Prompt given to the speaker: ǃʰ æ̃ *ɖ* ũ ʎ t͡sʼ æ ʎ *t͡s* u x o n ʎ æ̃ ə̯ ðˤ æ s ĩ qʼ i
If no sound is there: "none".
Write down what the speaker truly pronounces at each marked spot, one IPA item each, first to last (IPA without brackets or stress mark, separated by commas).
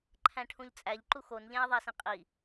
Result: ʈʰ, ǃ